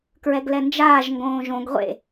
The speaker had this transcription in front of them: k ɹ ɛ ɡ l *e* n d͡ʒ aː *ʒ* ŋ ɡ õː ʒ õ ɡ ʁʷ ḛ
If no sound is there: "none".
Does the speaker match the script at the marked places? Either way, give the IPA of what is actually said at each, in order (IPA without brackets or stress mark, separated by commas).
ɛ, ʒ